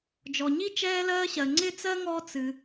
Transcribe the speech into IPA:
d͡ʒ ɔ˩ ɲ i˥ t͡ʃ ɛː˥ l ɜː˥ ɕ ɜ˩ ŋ͡ǀ ɪ˥ t͡s ɜ˥ ŋ ɔ˥ t͡s ɨ˩

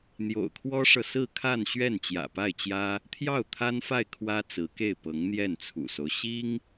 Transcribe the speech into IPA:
n̪ j o̰˨˩ ʊ̯ kʰ w ɔ˥ ʂ ɤ˨ s ɹ̩˥˧ kʰ a˥˧ n ɕ ɥ ɛ˥˩ n t͡ɕ j ä̰˨˩ p a˥˩ ɪ̯ t͡ɕ j ä˥ | t̪ʰ j ɑ˥˩ ʊ̯ t̪ʰ a˥ n f a˥˩ ɪ̯ kʰ w ä˥ t͡s ɹ̩˧˥ k e˥˩ ɪ̯ p ɤ˧˥ ŋ n̪ j ɛ˥˩ n t͡sʰ ṵ˨˩ s o˦ ʊ̯ ɕ i˥ ŋ

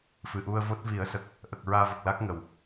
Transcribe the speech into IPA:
f ɨ˨˩ ʔ u˧ ə̯ v o˦˥ t̚ v i˨˩˦ ə̯ s ə˨˩ k̚ | ʔ ə˨˩ k̚ ɹ aː˧ v ə˨˩ k̚ l a˦˥ k̚ ŋ ə˨˩˨ w

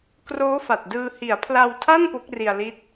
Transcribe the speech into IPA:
k r oː˦˥ f a˨˩ t̚ d ɯː˧ h i˩˦ a̯ pʰ l a˧ w tʰ a˥˩ n p o˦˥ k̚ r i˧ a̯ l i˦˥ t̚

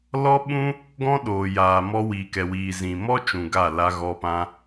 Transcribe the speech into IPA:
l ɔ˦ ɓ ũ˦ | ɡ ɔ̃˦ ɗ oː˨ j aː˨ m ɔ˧ w iː˨ k ɛ˨ w iː˨ z ĩ˨ m ɔ˦ t͡ʃ ũ˨ ɡ a˦˨ l a˧ ɣ ɔ˧ p ã˧

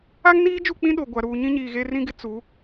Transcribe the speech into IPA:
a˦ ŋ n iː˦ d͡ʒ u˦˨ k͡p ĩ˦ ɗ o˨ ɡʷ a˨ ɾ uː˨ ɲ ĩ˦ ɲ iː˨ ɣ e˦ r ĩ˦ ɡ ɪ˦ t͡s u˨˦

